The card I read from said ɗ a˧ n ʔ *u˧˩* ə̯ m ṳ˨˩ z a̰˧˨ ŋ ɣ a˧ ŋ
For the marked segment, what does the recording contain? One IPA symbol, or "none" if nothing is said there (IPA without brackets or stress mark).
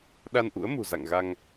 ṵ˧˥